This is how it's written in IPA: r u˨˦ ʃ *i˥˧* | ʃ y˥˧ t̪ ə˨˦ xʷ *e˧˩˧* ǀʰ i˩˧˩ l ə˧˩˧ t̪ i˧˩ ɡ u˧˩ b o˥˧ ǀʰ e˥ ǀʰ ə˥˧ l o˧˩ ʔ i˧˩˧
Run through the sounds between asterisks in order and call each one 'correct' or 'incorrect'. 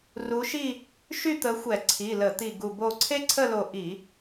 correct, incorrect: ɛ˧˩˧

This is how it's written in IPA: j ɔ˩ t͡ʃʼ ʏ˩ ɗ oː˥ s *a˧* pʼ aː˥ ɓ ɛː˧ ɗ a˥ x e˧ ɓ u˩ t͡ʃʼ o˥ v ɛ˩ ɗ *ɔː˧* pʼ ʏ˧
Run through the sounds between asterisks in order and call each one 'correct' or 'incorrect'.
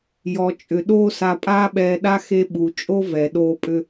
correct, incorrect: oː˧

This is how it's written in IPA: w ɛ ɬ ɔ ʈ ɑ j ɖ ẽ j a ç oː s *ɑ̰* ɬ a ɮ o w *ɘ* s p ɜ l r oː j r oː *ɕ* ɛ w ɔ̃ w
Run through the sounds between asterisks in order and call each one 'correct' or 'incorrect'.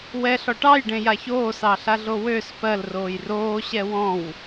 incorrect: ɑ, incorrect: ø, correct

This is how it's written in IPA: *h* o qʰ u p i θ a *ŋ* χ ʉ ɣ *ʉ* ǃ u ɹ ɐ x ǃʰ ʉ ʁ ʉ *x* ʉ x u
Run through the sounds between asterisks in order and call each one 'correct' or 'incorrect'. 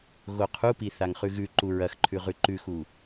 incorrect: ɣ, correct, correct, incorrect: ǃ

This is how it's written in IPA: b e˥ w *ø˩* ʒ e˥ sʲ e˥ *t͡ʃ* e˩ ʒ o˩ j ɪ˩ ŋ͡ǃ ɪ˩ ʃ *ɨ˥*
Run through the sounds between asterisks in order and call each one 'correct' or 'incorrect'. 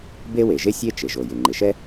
incorrect: e˩, correct, incorrect: ɛ˥

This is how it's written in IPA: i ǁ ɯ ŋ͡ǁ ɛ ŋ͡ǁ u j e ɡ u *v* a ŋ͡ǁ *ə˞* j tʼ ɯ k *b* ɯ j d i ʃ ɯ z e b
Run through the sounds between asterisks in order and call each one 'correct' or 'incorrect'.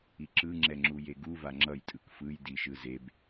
correct, incorrect: ʌ, incorrect: f

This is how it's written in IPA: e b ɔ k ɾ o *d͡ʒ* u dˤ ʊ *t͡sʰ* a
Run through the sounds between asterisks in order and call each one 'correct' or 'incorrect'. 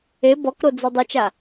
incorrect: d͡z, incorrect: t͡ʃ

